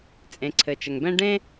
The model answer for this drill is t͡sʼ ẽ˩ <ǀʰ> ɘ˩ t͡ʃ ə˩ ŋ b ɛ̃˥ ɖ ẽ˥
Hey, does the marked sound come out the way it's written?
yes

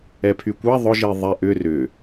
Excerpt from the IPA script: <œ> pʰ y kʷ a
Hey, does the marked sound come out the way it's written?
no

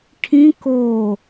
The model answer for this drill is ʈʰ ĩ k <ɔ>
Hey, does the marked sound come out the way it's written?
no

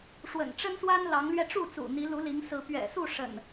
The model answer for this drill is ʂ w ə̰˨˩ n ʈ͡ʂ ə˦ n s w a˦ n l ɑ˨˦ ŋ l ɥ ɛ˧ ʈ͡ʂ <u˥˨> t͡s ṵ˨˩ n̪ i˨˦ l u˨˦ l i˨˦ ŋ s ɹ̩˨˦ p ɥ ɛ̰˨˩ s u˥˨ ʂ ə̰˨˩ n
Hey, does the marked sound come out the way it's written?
yes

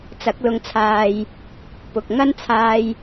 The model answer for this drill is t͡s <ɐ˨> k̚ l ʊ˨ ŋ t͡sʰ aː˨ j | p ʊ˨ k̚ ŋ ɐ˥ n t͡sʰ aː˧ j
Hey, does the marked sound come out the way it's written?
no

